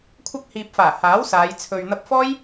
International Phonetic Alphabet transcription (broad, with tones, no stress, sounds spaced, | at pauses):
kʷʰ ɐ˧ k̚ h iː˨ p̚ f aː˨˩ h aː˨˥ w s aː˨˧ j t͡sʰ ɵ˨ ɥ n̪ ɐ˧ p̚ f ɔː˥ j